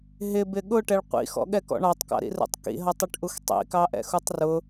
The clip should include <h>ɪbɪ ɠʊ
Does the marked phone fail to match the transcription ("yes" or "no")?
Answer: yes